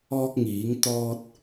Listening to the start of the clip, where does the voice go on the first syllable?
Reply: high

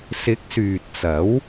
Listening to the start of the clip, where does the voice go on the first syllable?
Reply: rising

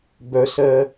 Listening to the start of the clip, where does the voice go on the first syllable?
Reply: high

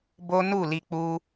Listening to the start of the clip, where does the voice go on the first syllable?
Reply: high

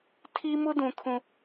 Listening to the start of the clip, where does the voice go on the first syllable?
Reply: high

